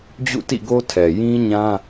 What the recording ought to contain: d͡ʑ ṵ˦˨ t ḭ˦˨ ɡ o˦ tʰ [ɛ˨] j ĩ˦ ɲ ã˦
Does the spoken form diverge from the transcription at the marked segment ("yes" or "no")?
no